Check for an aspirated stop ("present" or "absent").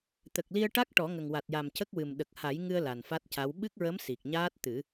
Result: absent